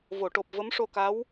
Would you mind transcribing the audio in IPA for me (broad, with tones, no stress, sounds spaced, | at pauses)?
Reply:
v o˨˩˨ ʈ o˨˩ p̚ v ə˧˥ m ʂ o˧ k a˧˥ w